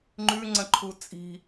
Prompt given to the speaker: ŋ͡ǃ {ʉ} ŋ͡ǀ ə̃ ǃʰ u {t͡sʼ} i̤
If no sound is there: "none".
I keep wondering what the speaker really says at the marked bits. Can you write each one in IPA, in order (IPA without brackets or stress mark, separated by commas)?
ʉ, t͡sʼ